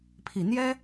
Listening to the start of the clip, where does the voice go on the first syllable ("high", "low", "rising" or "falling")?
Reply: low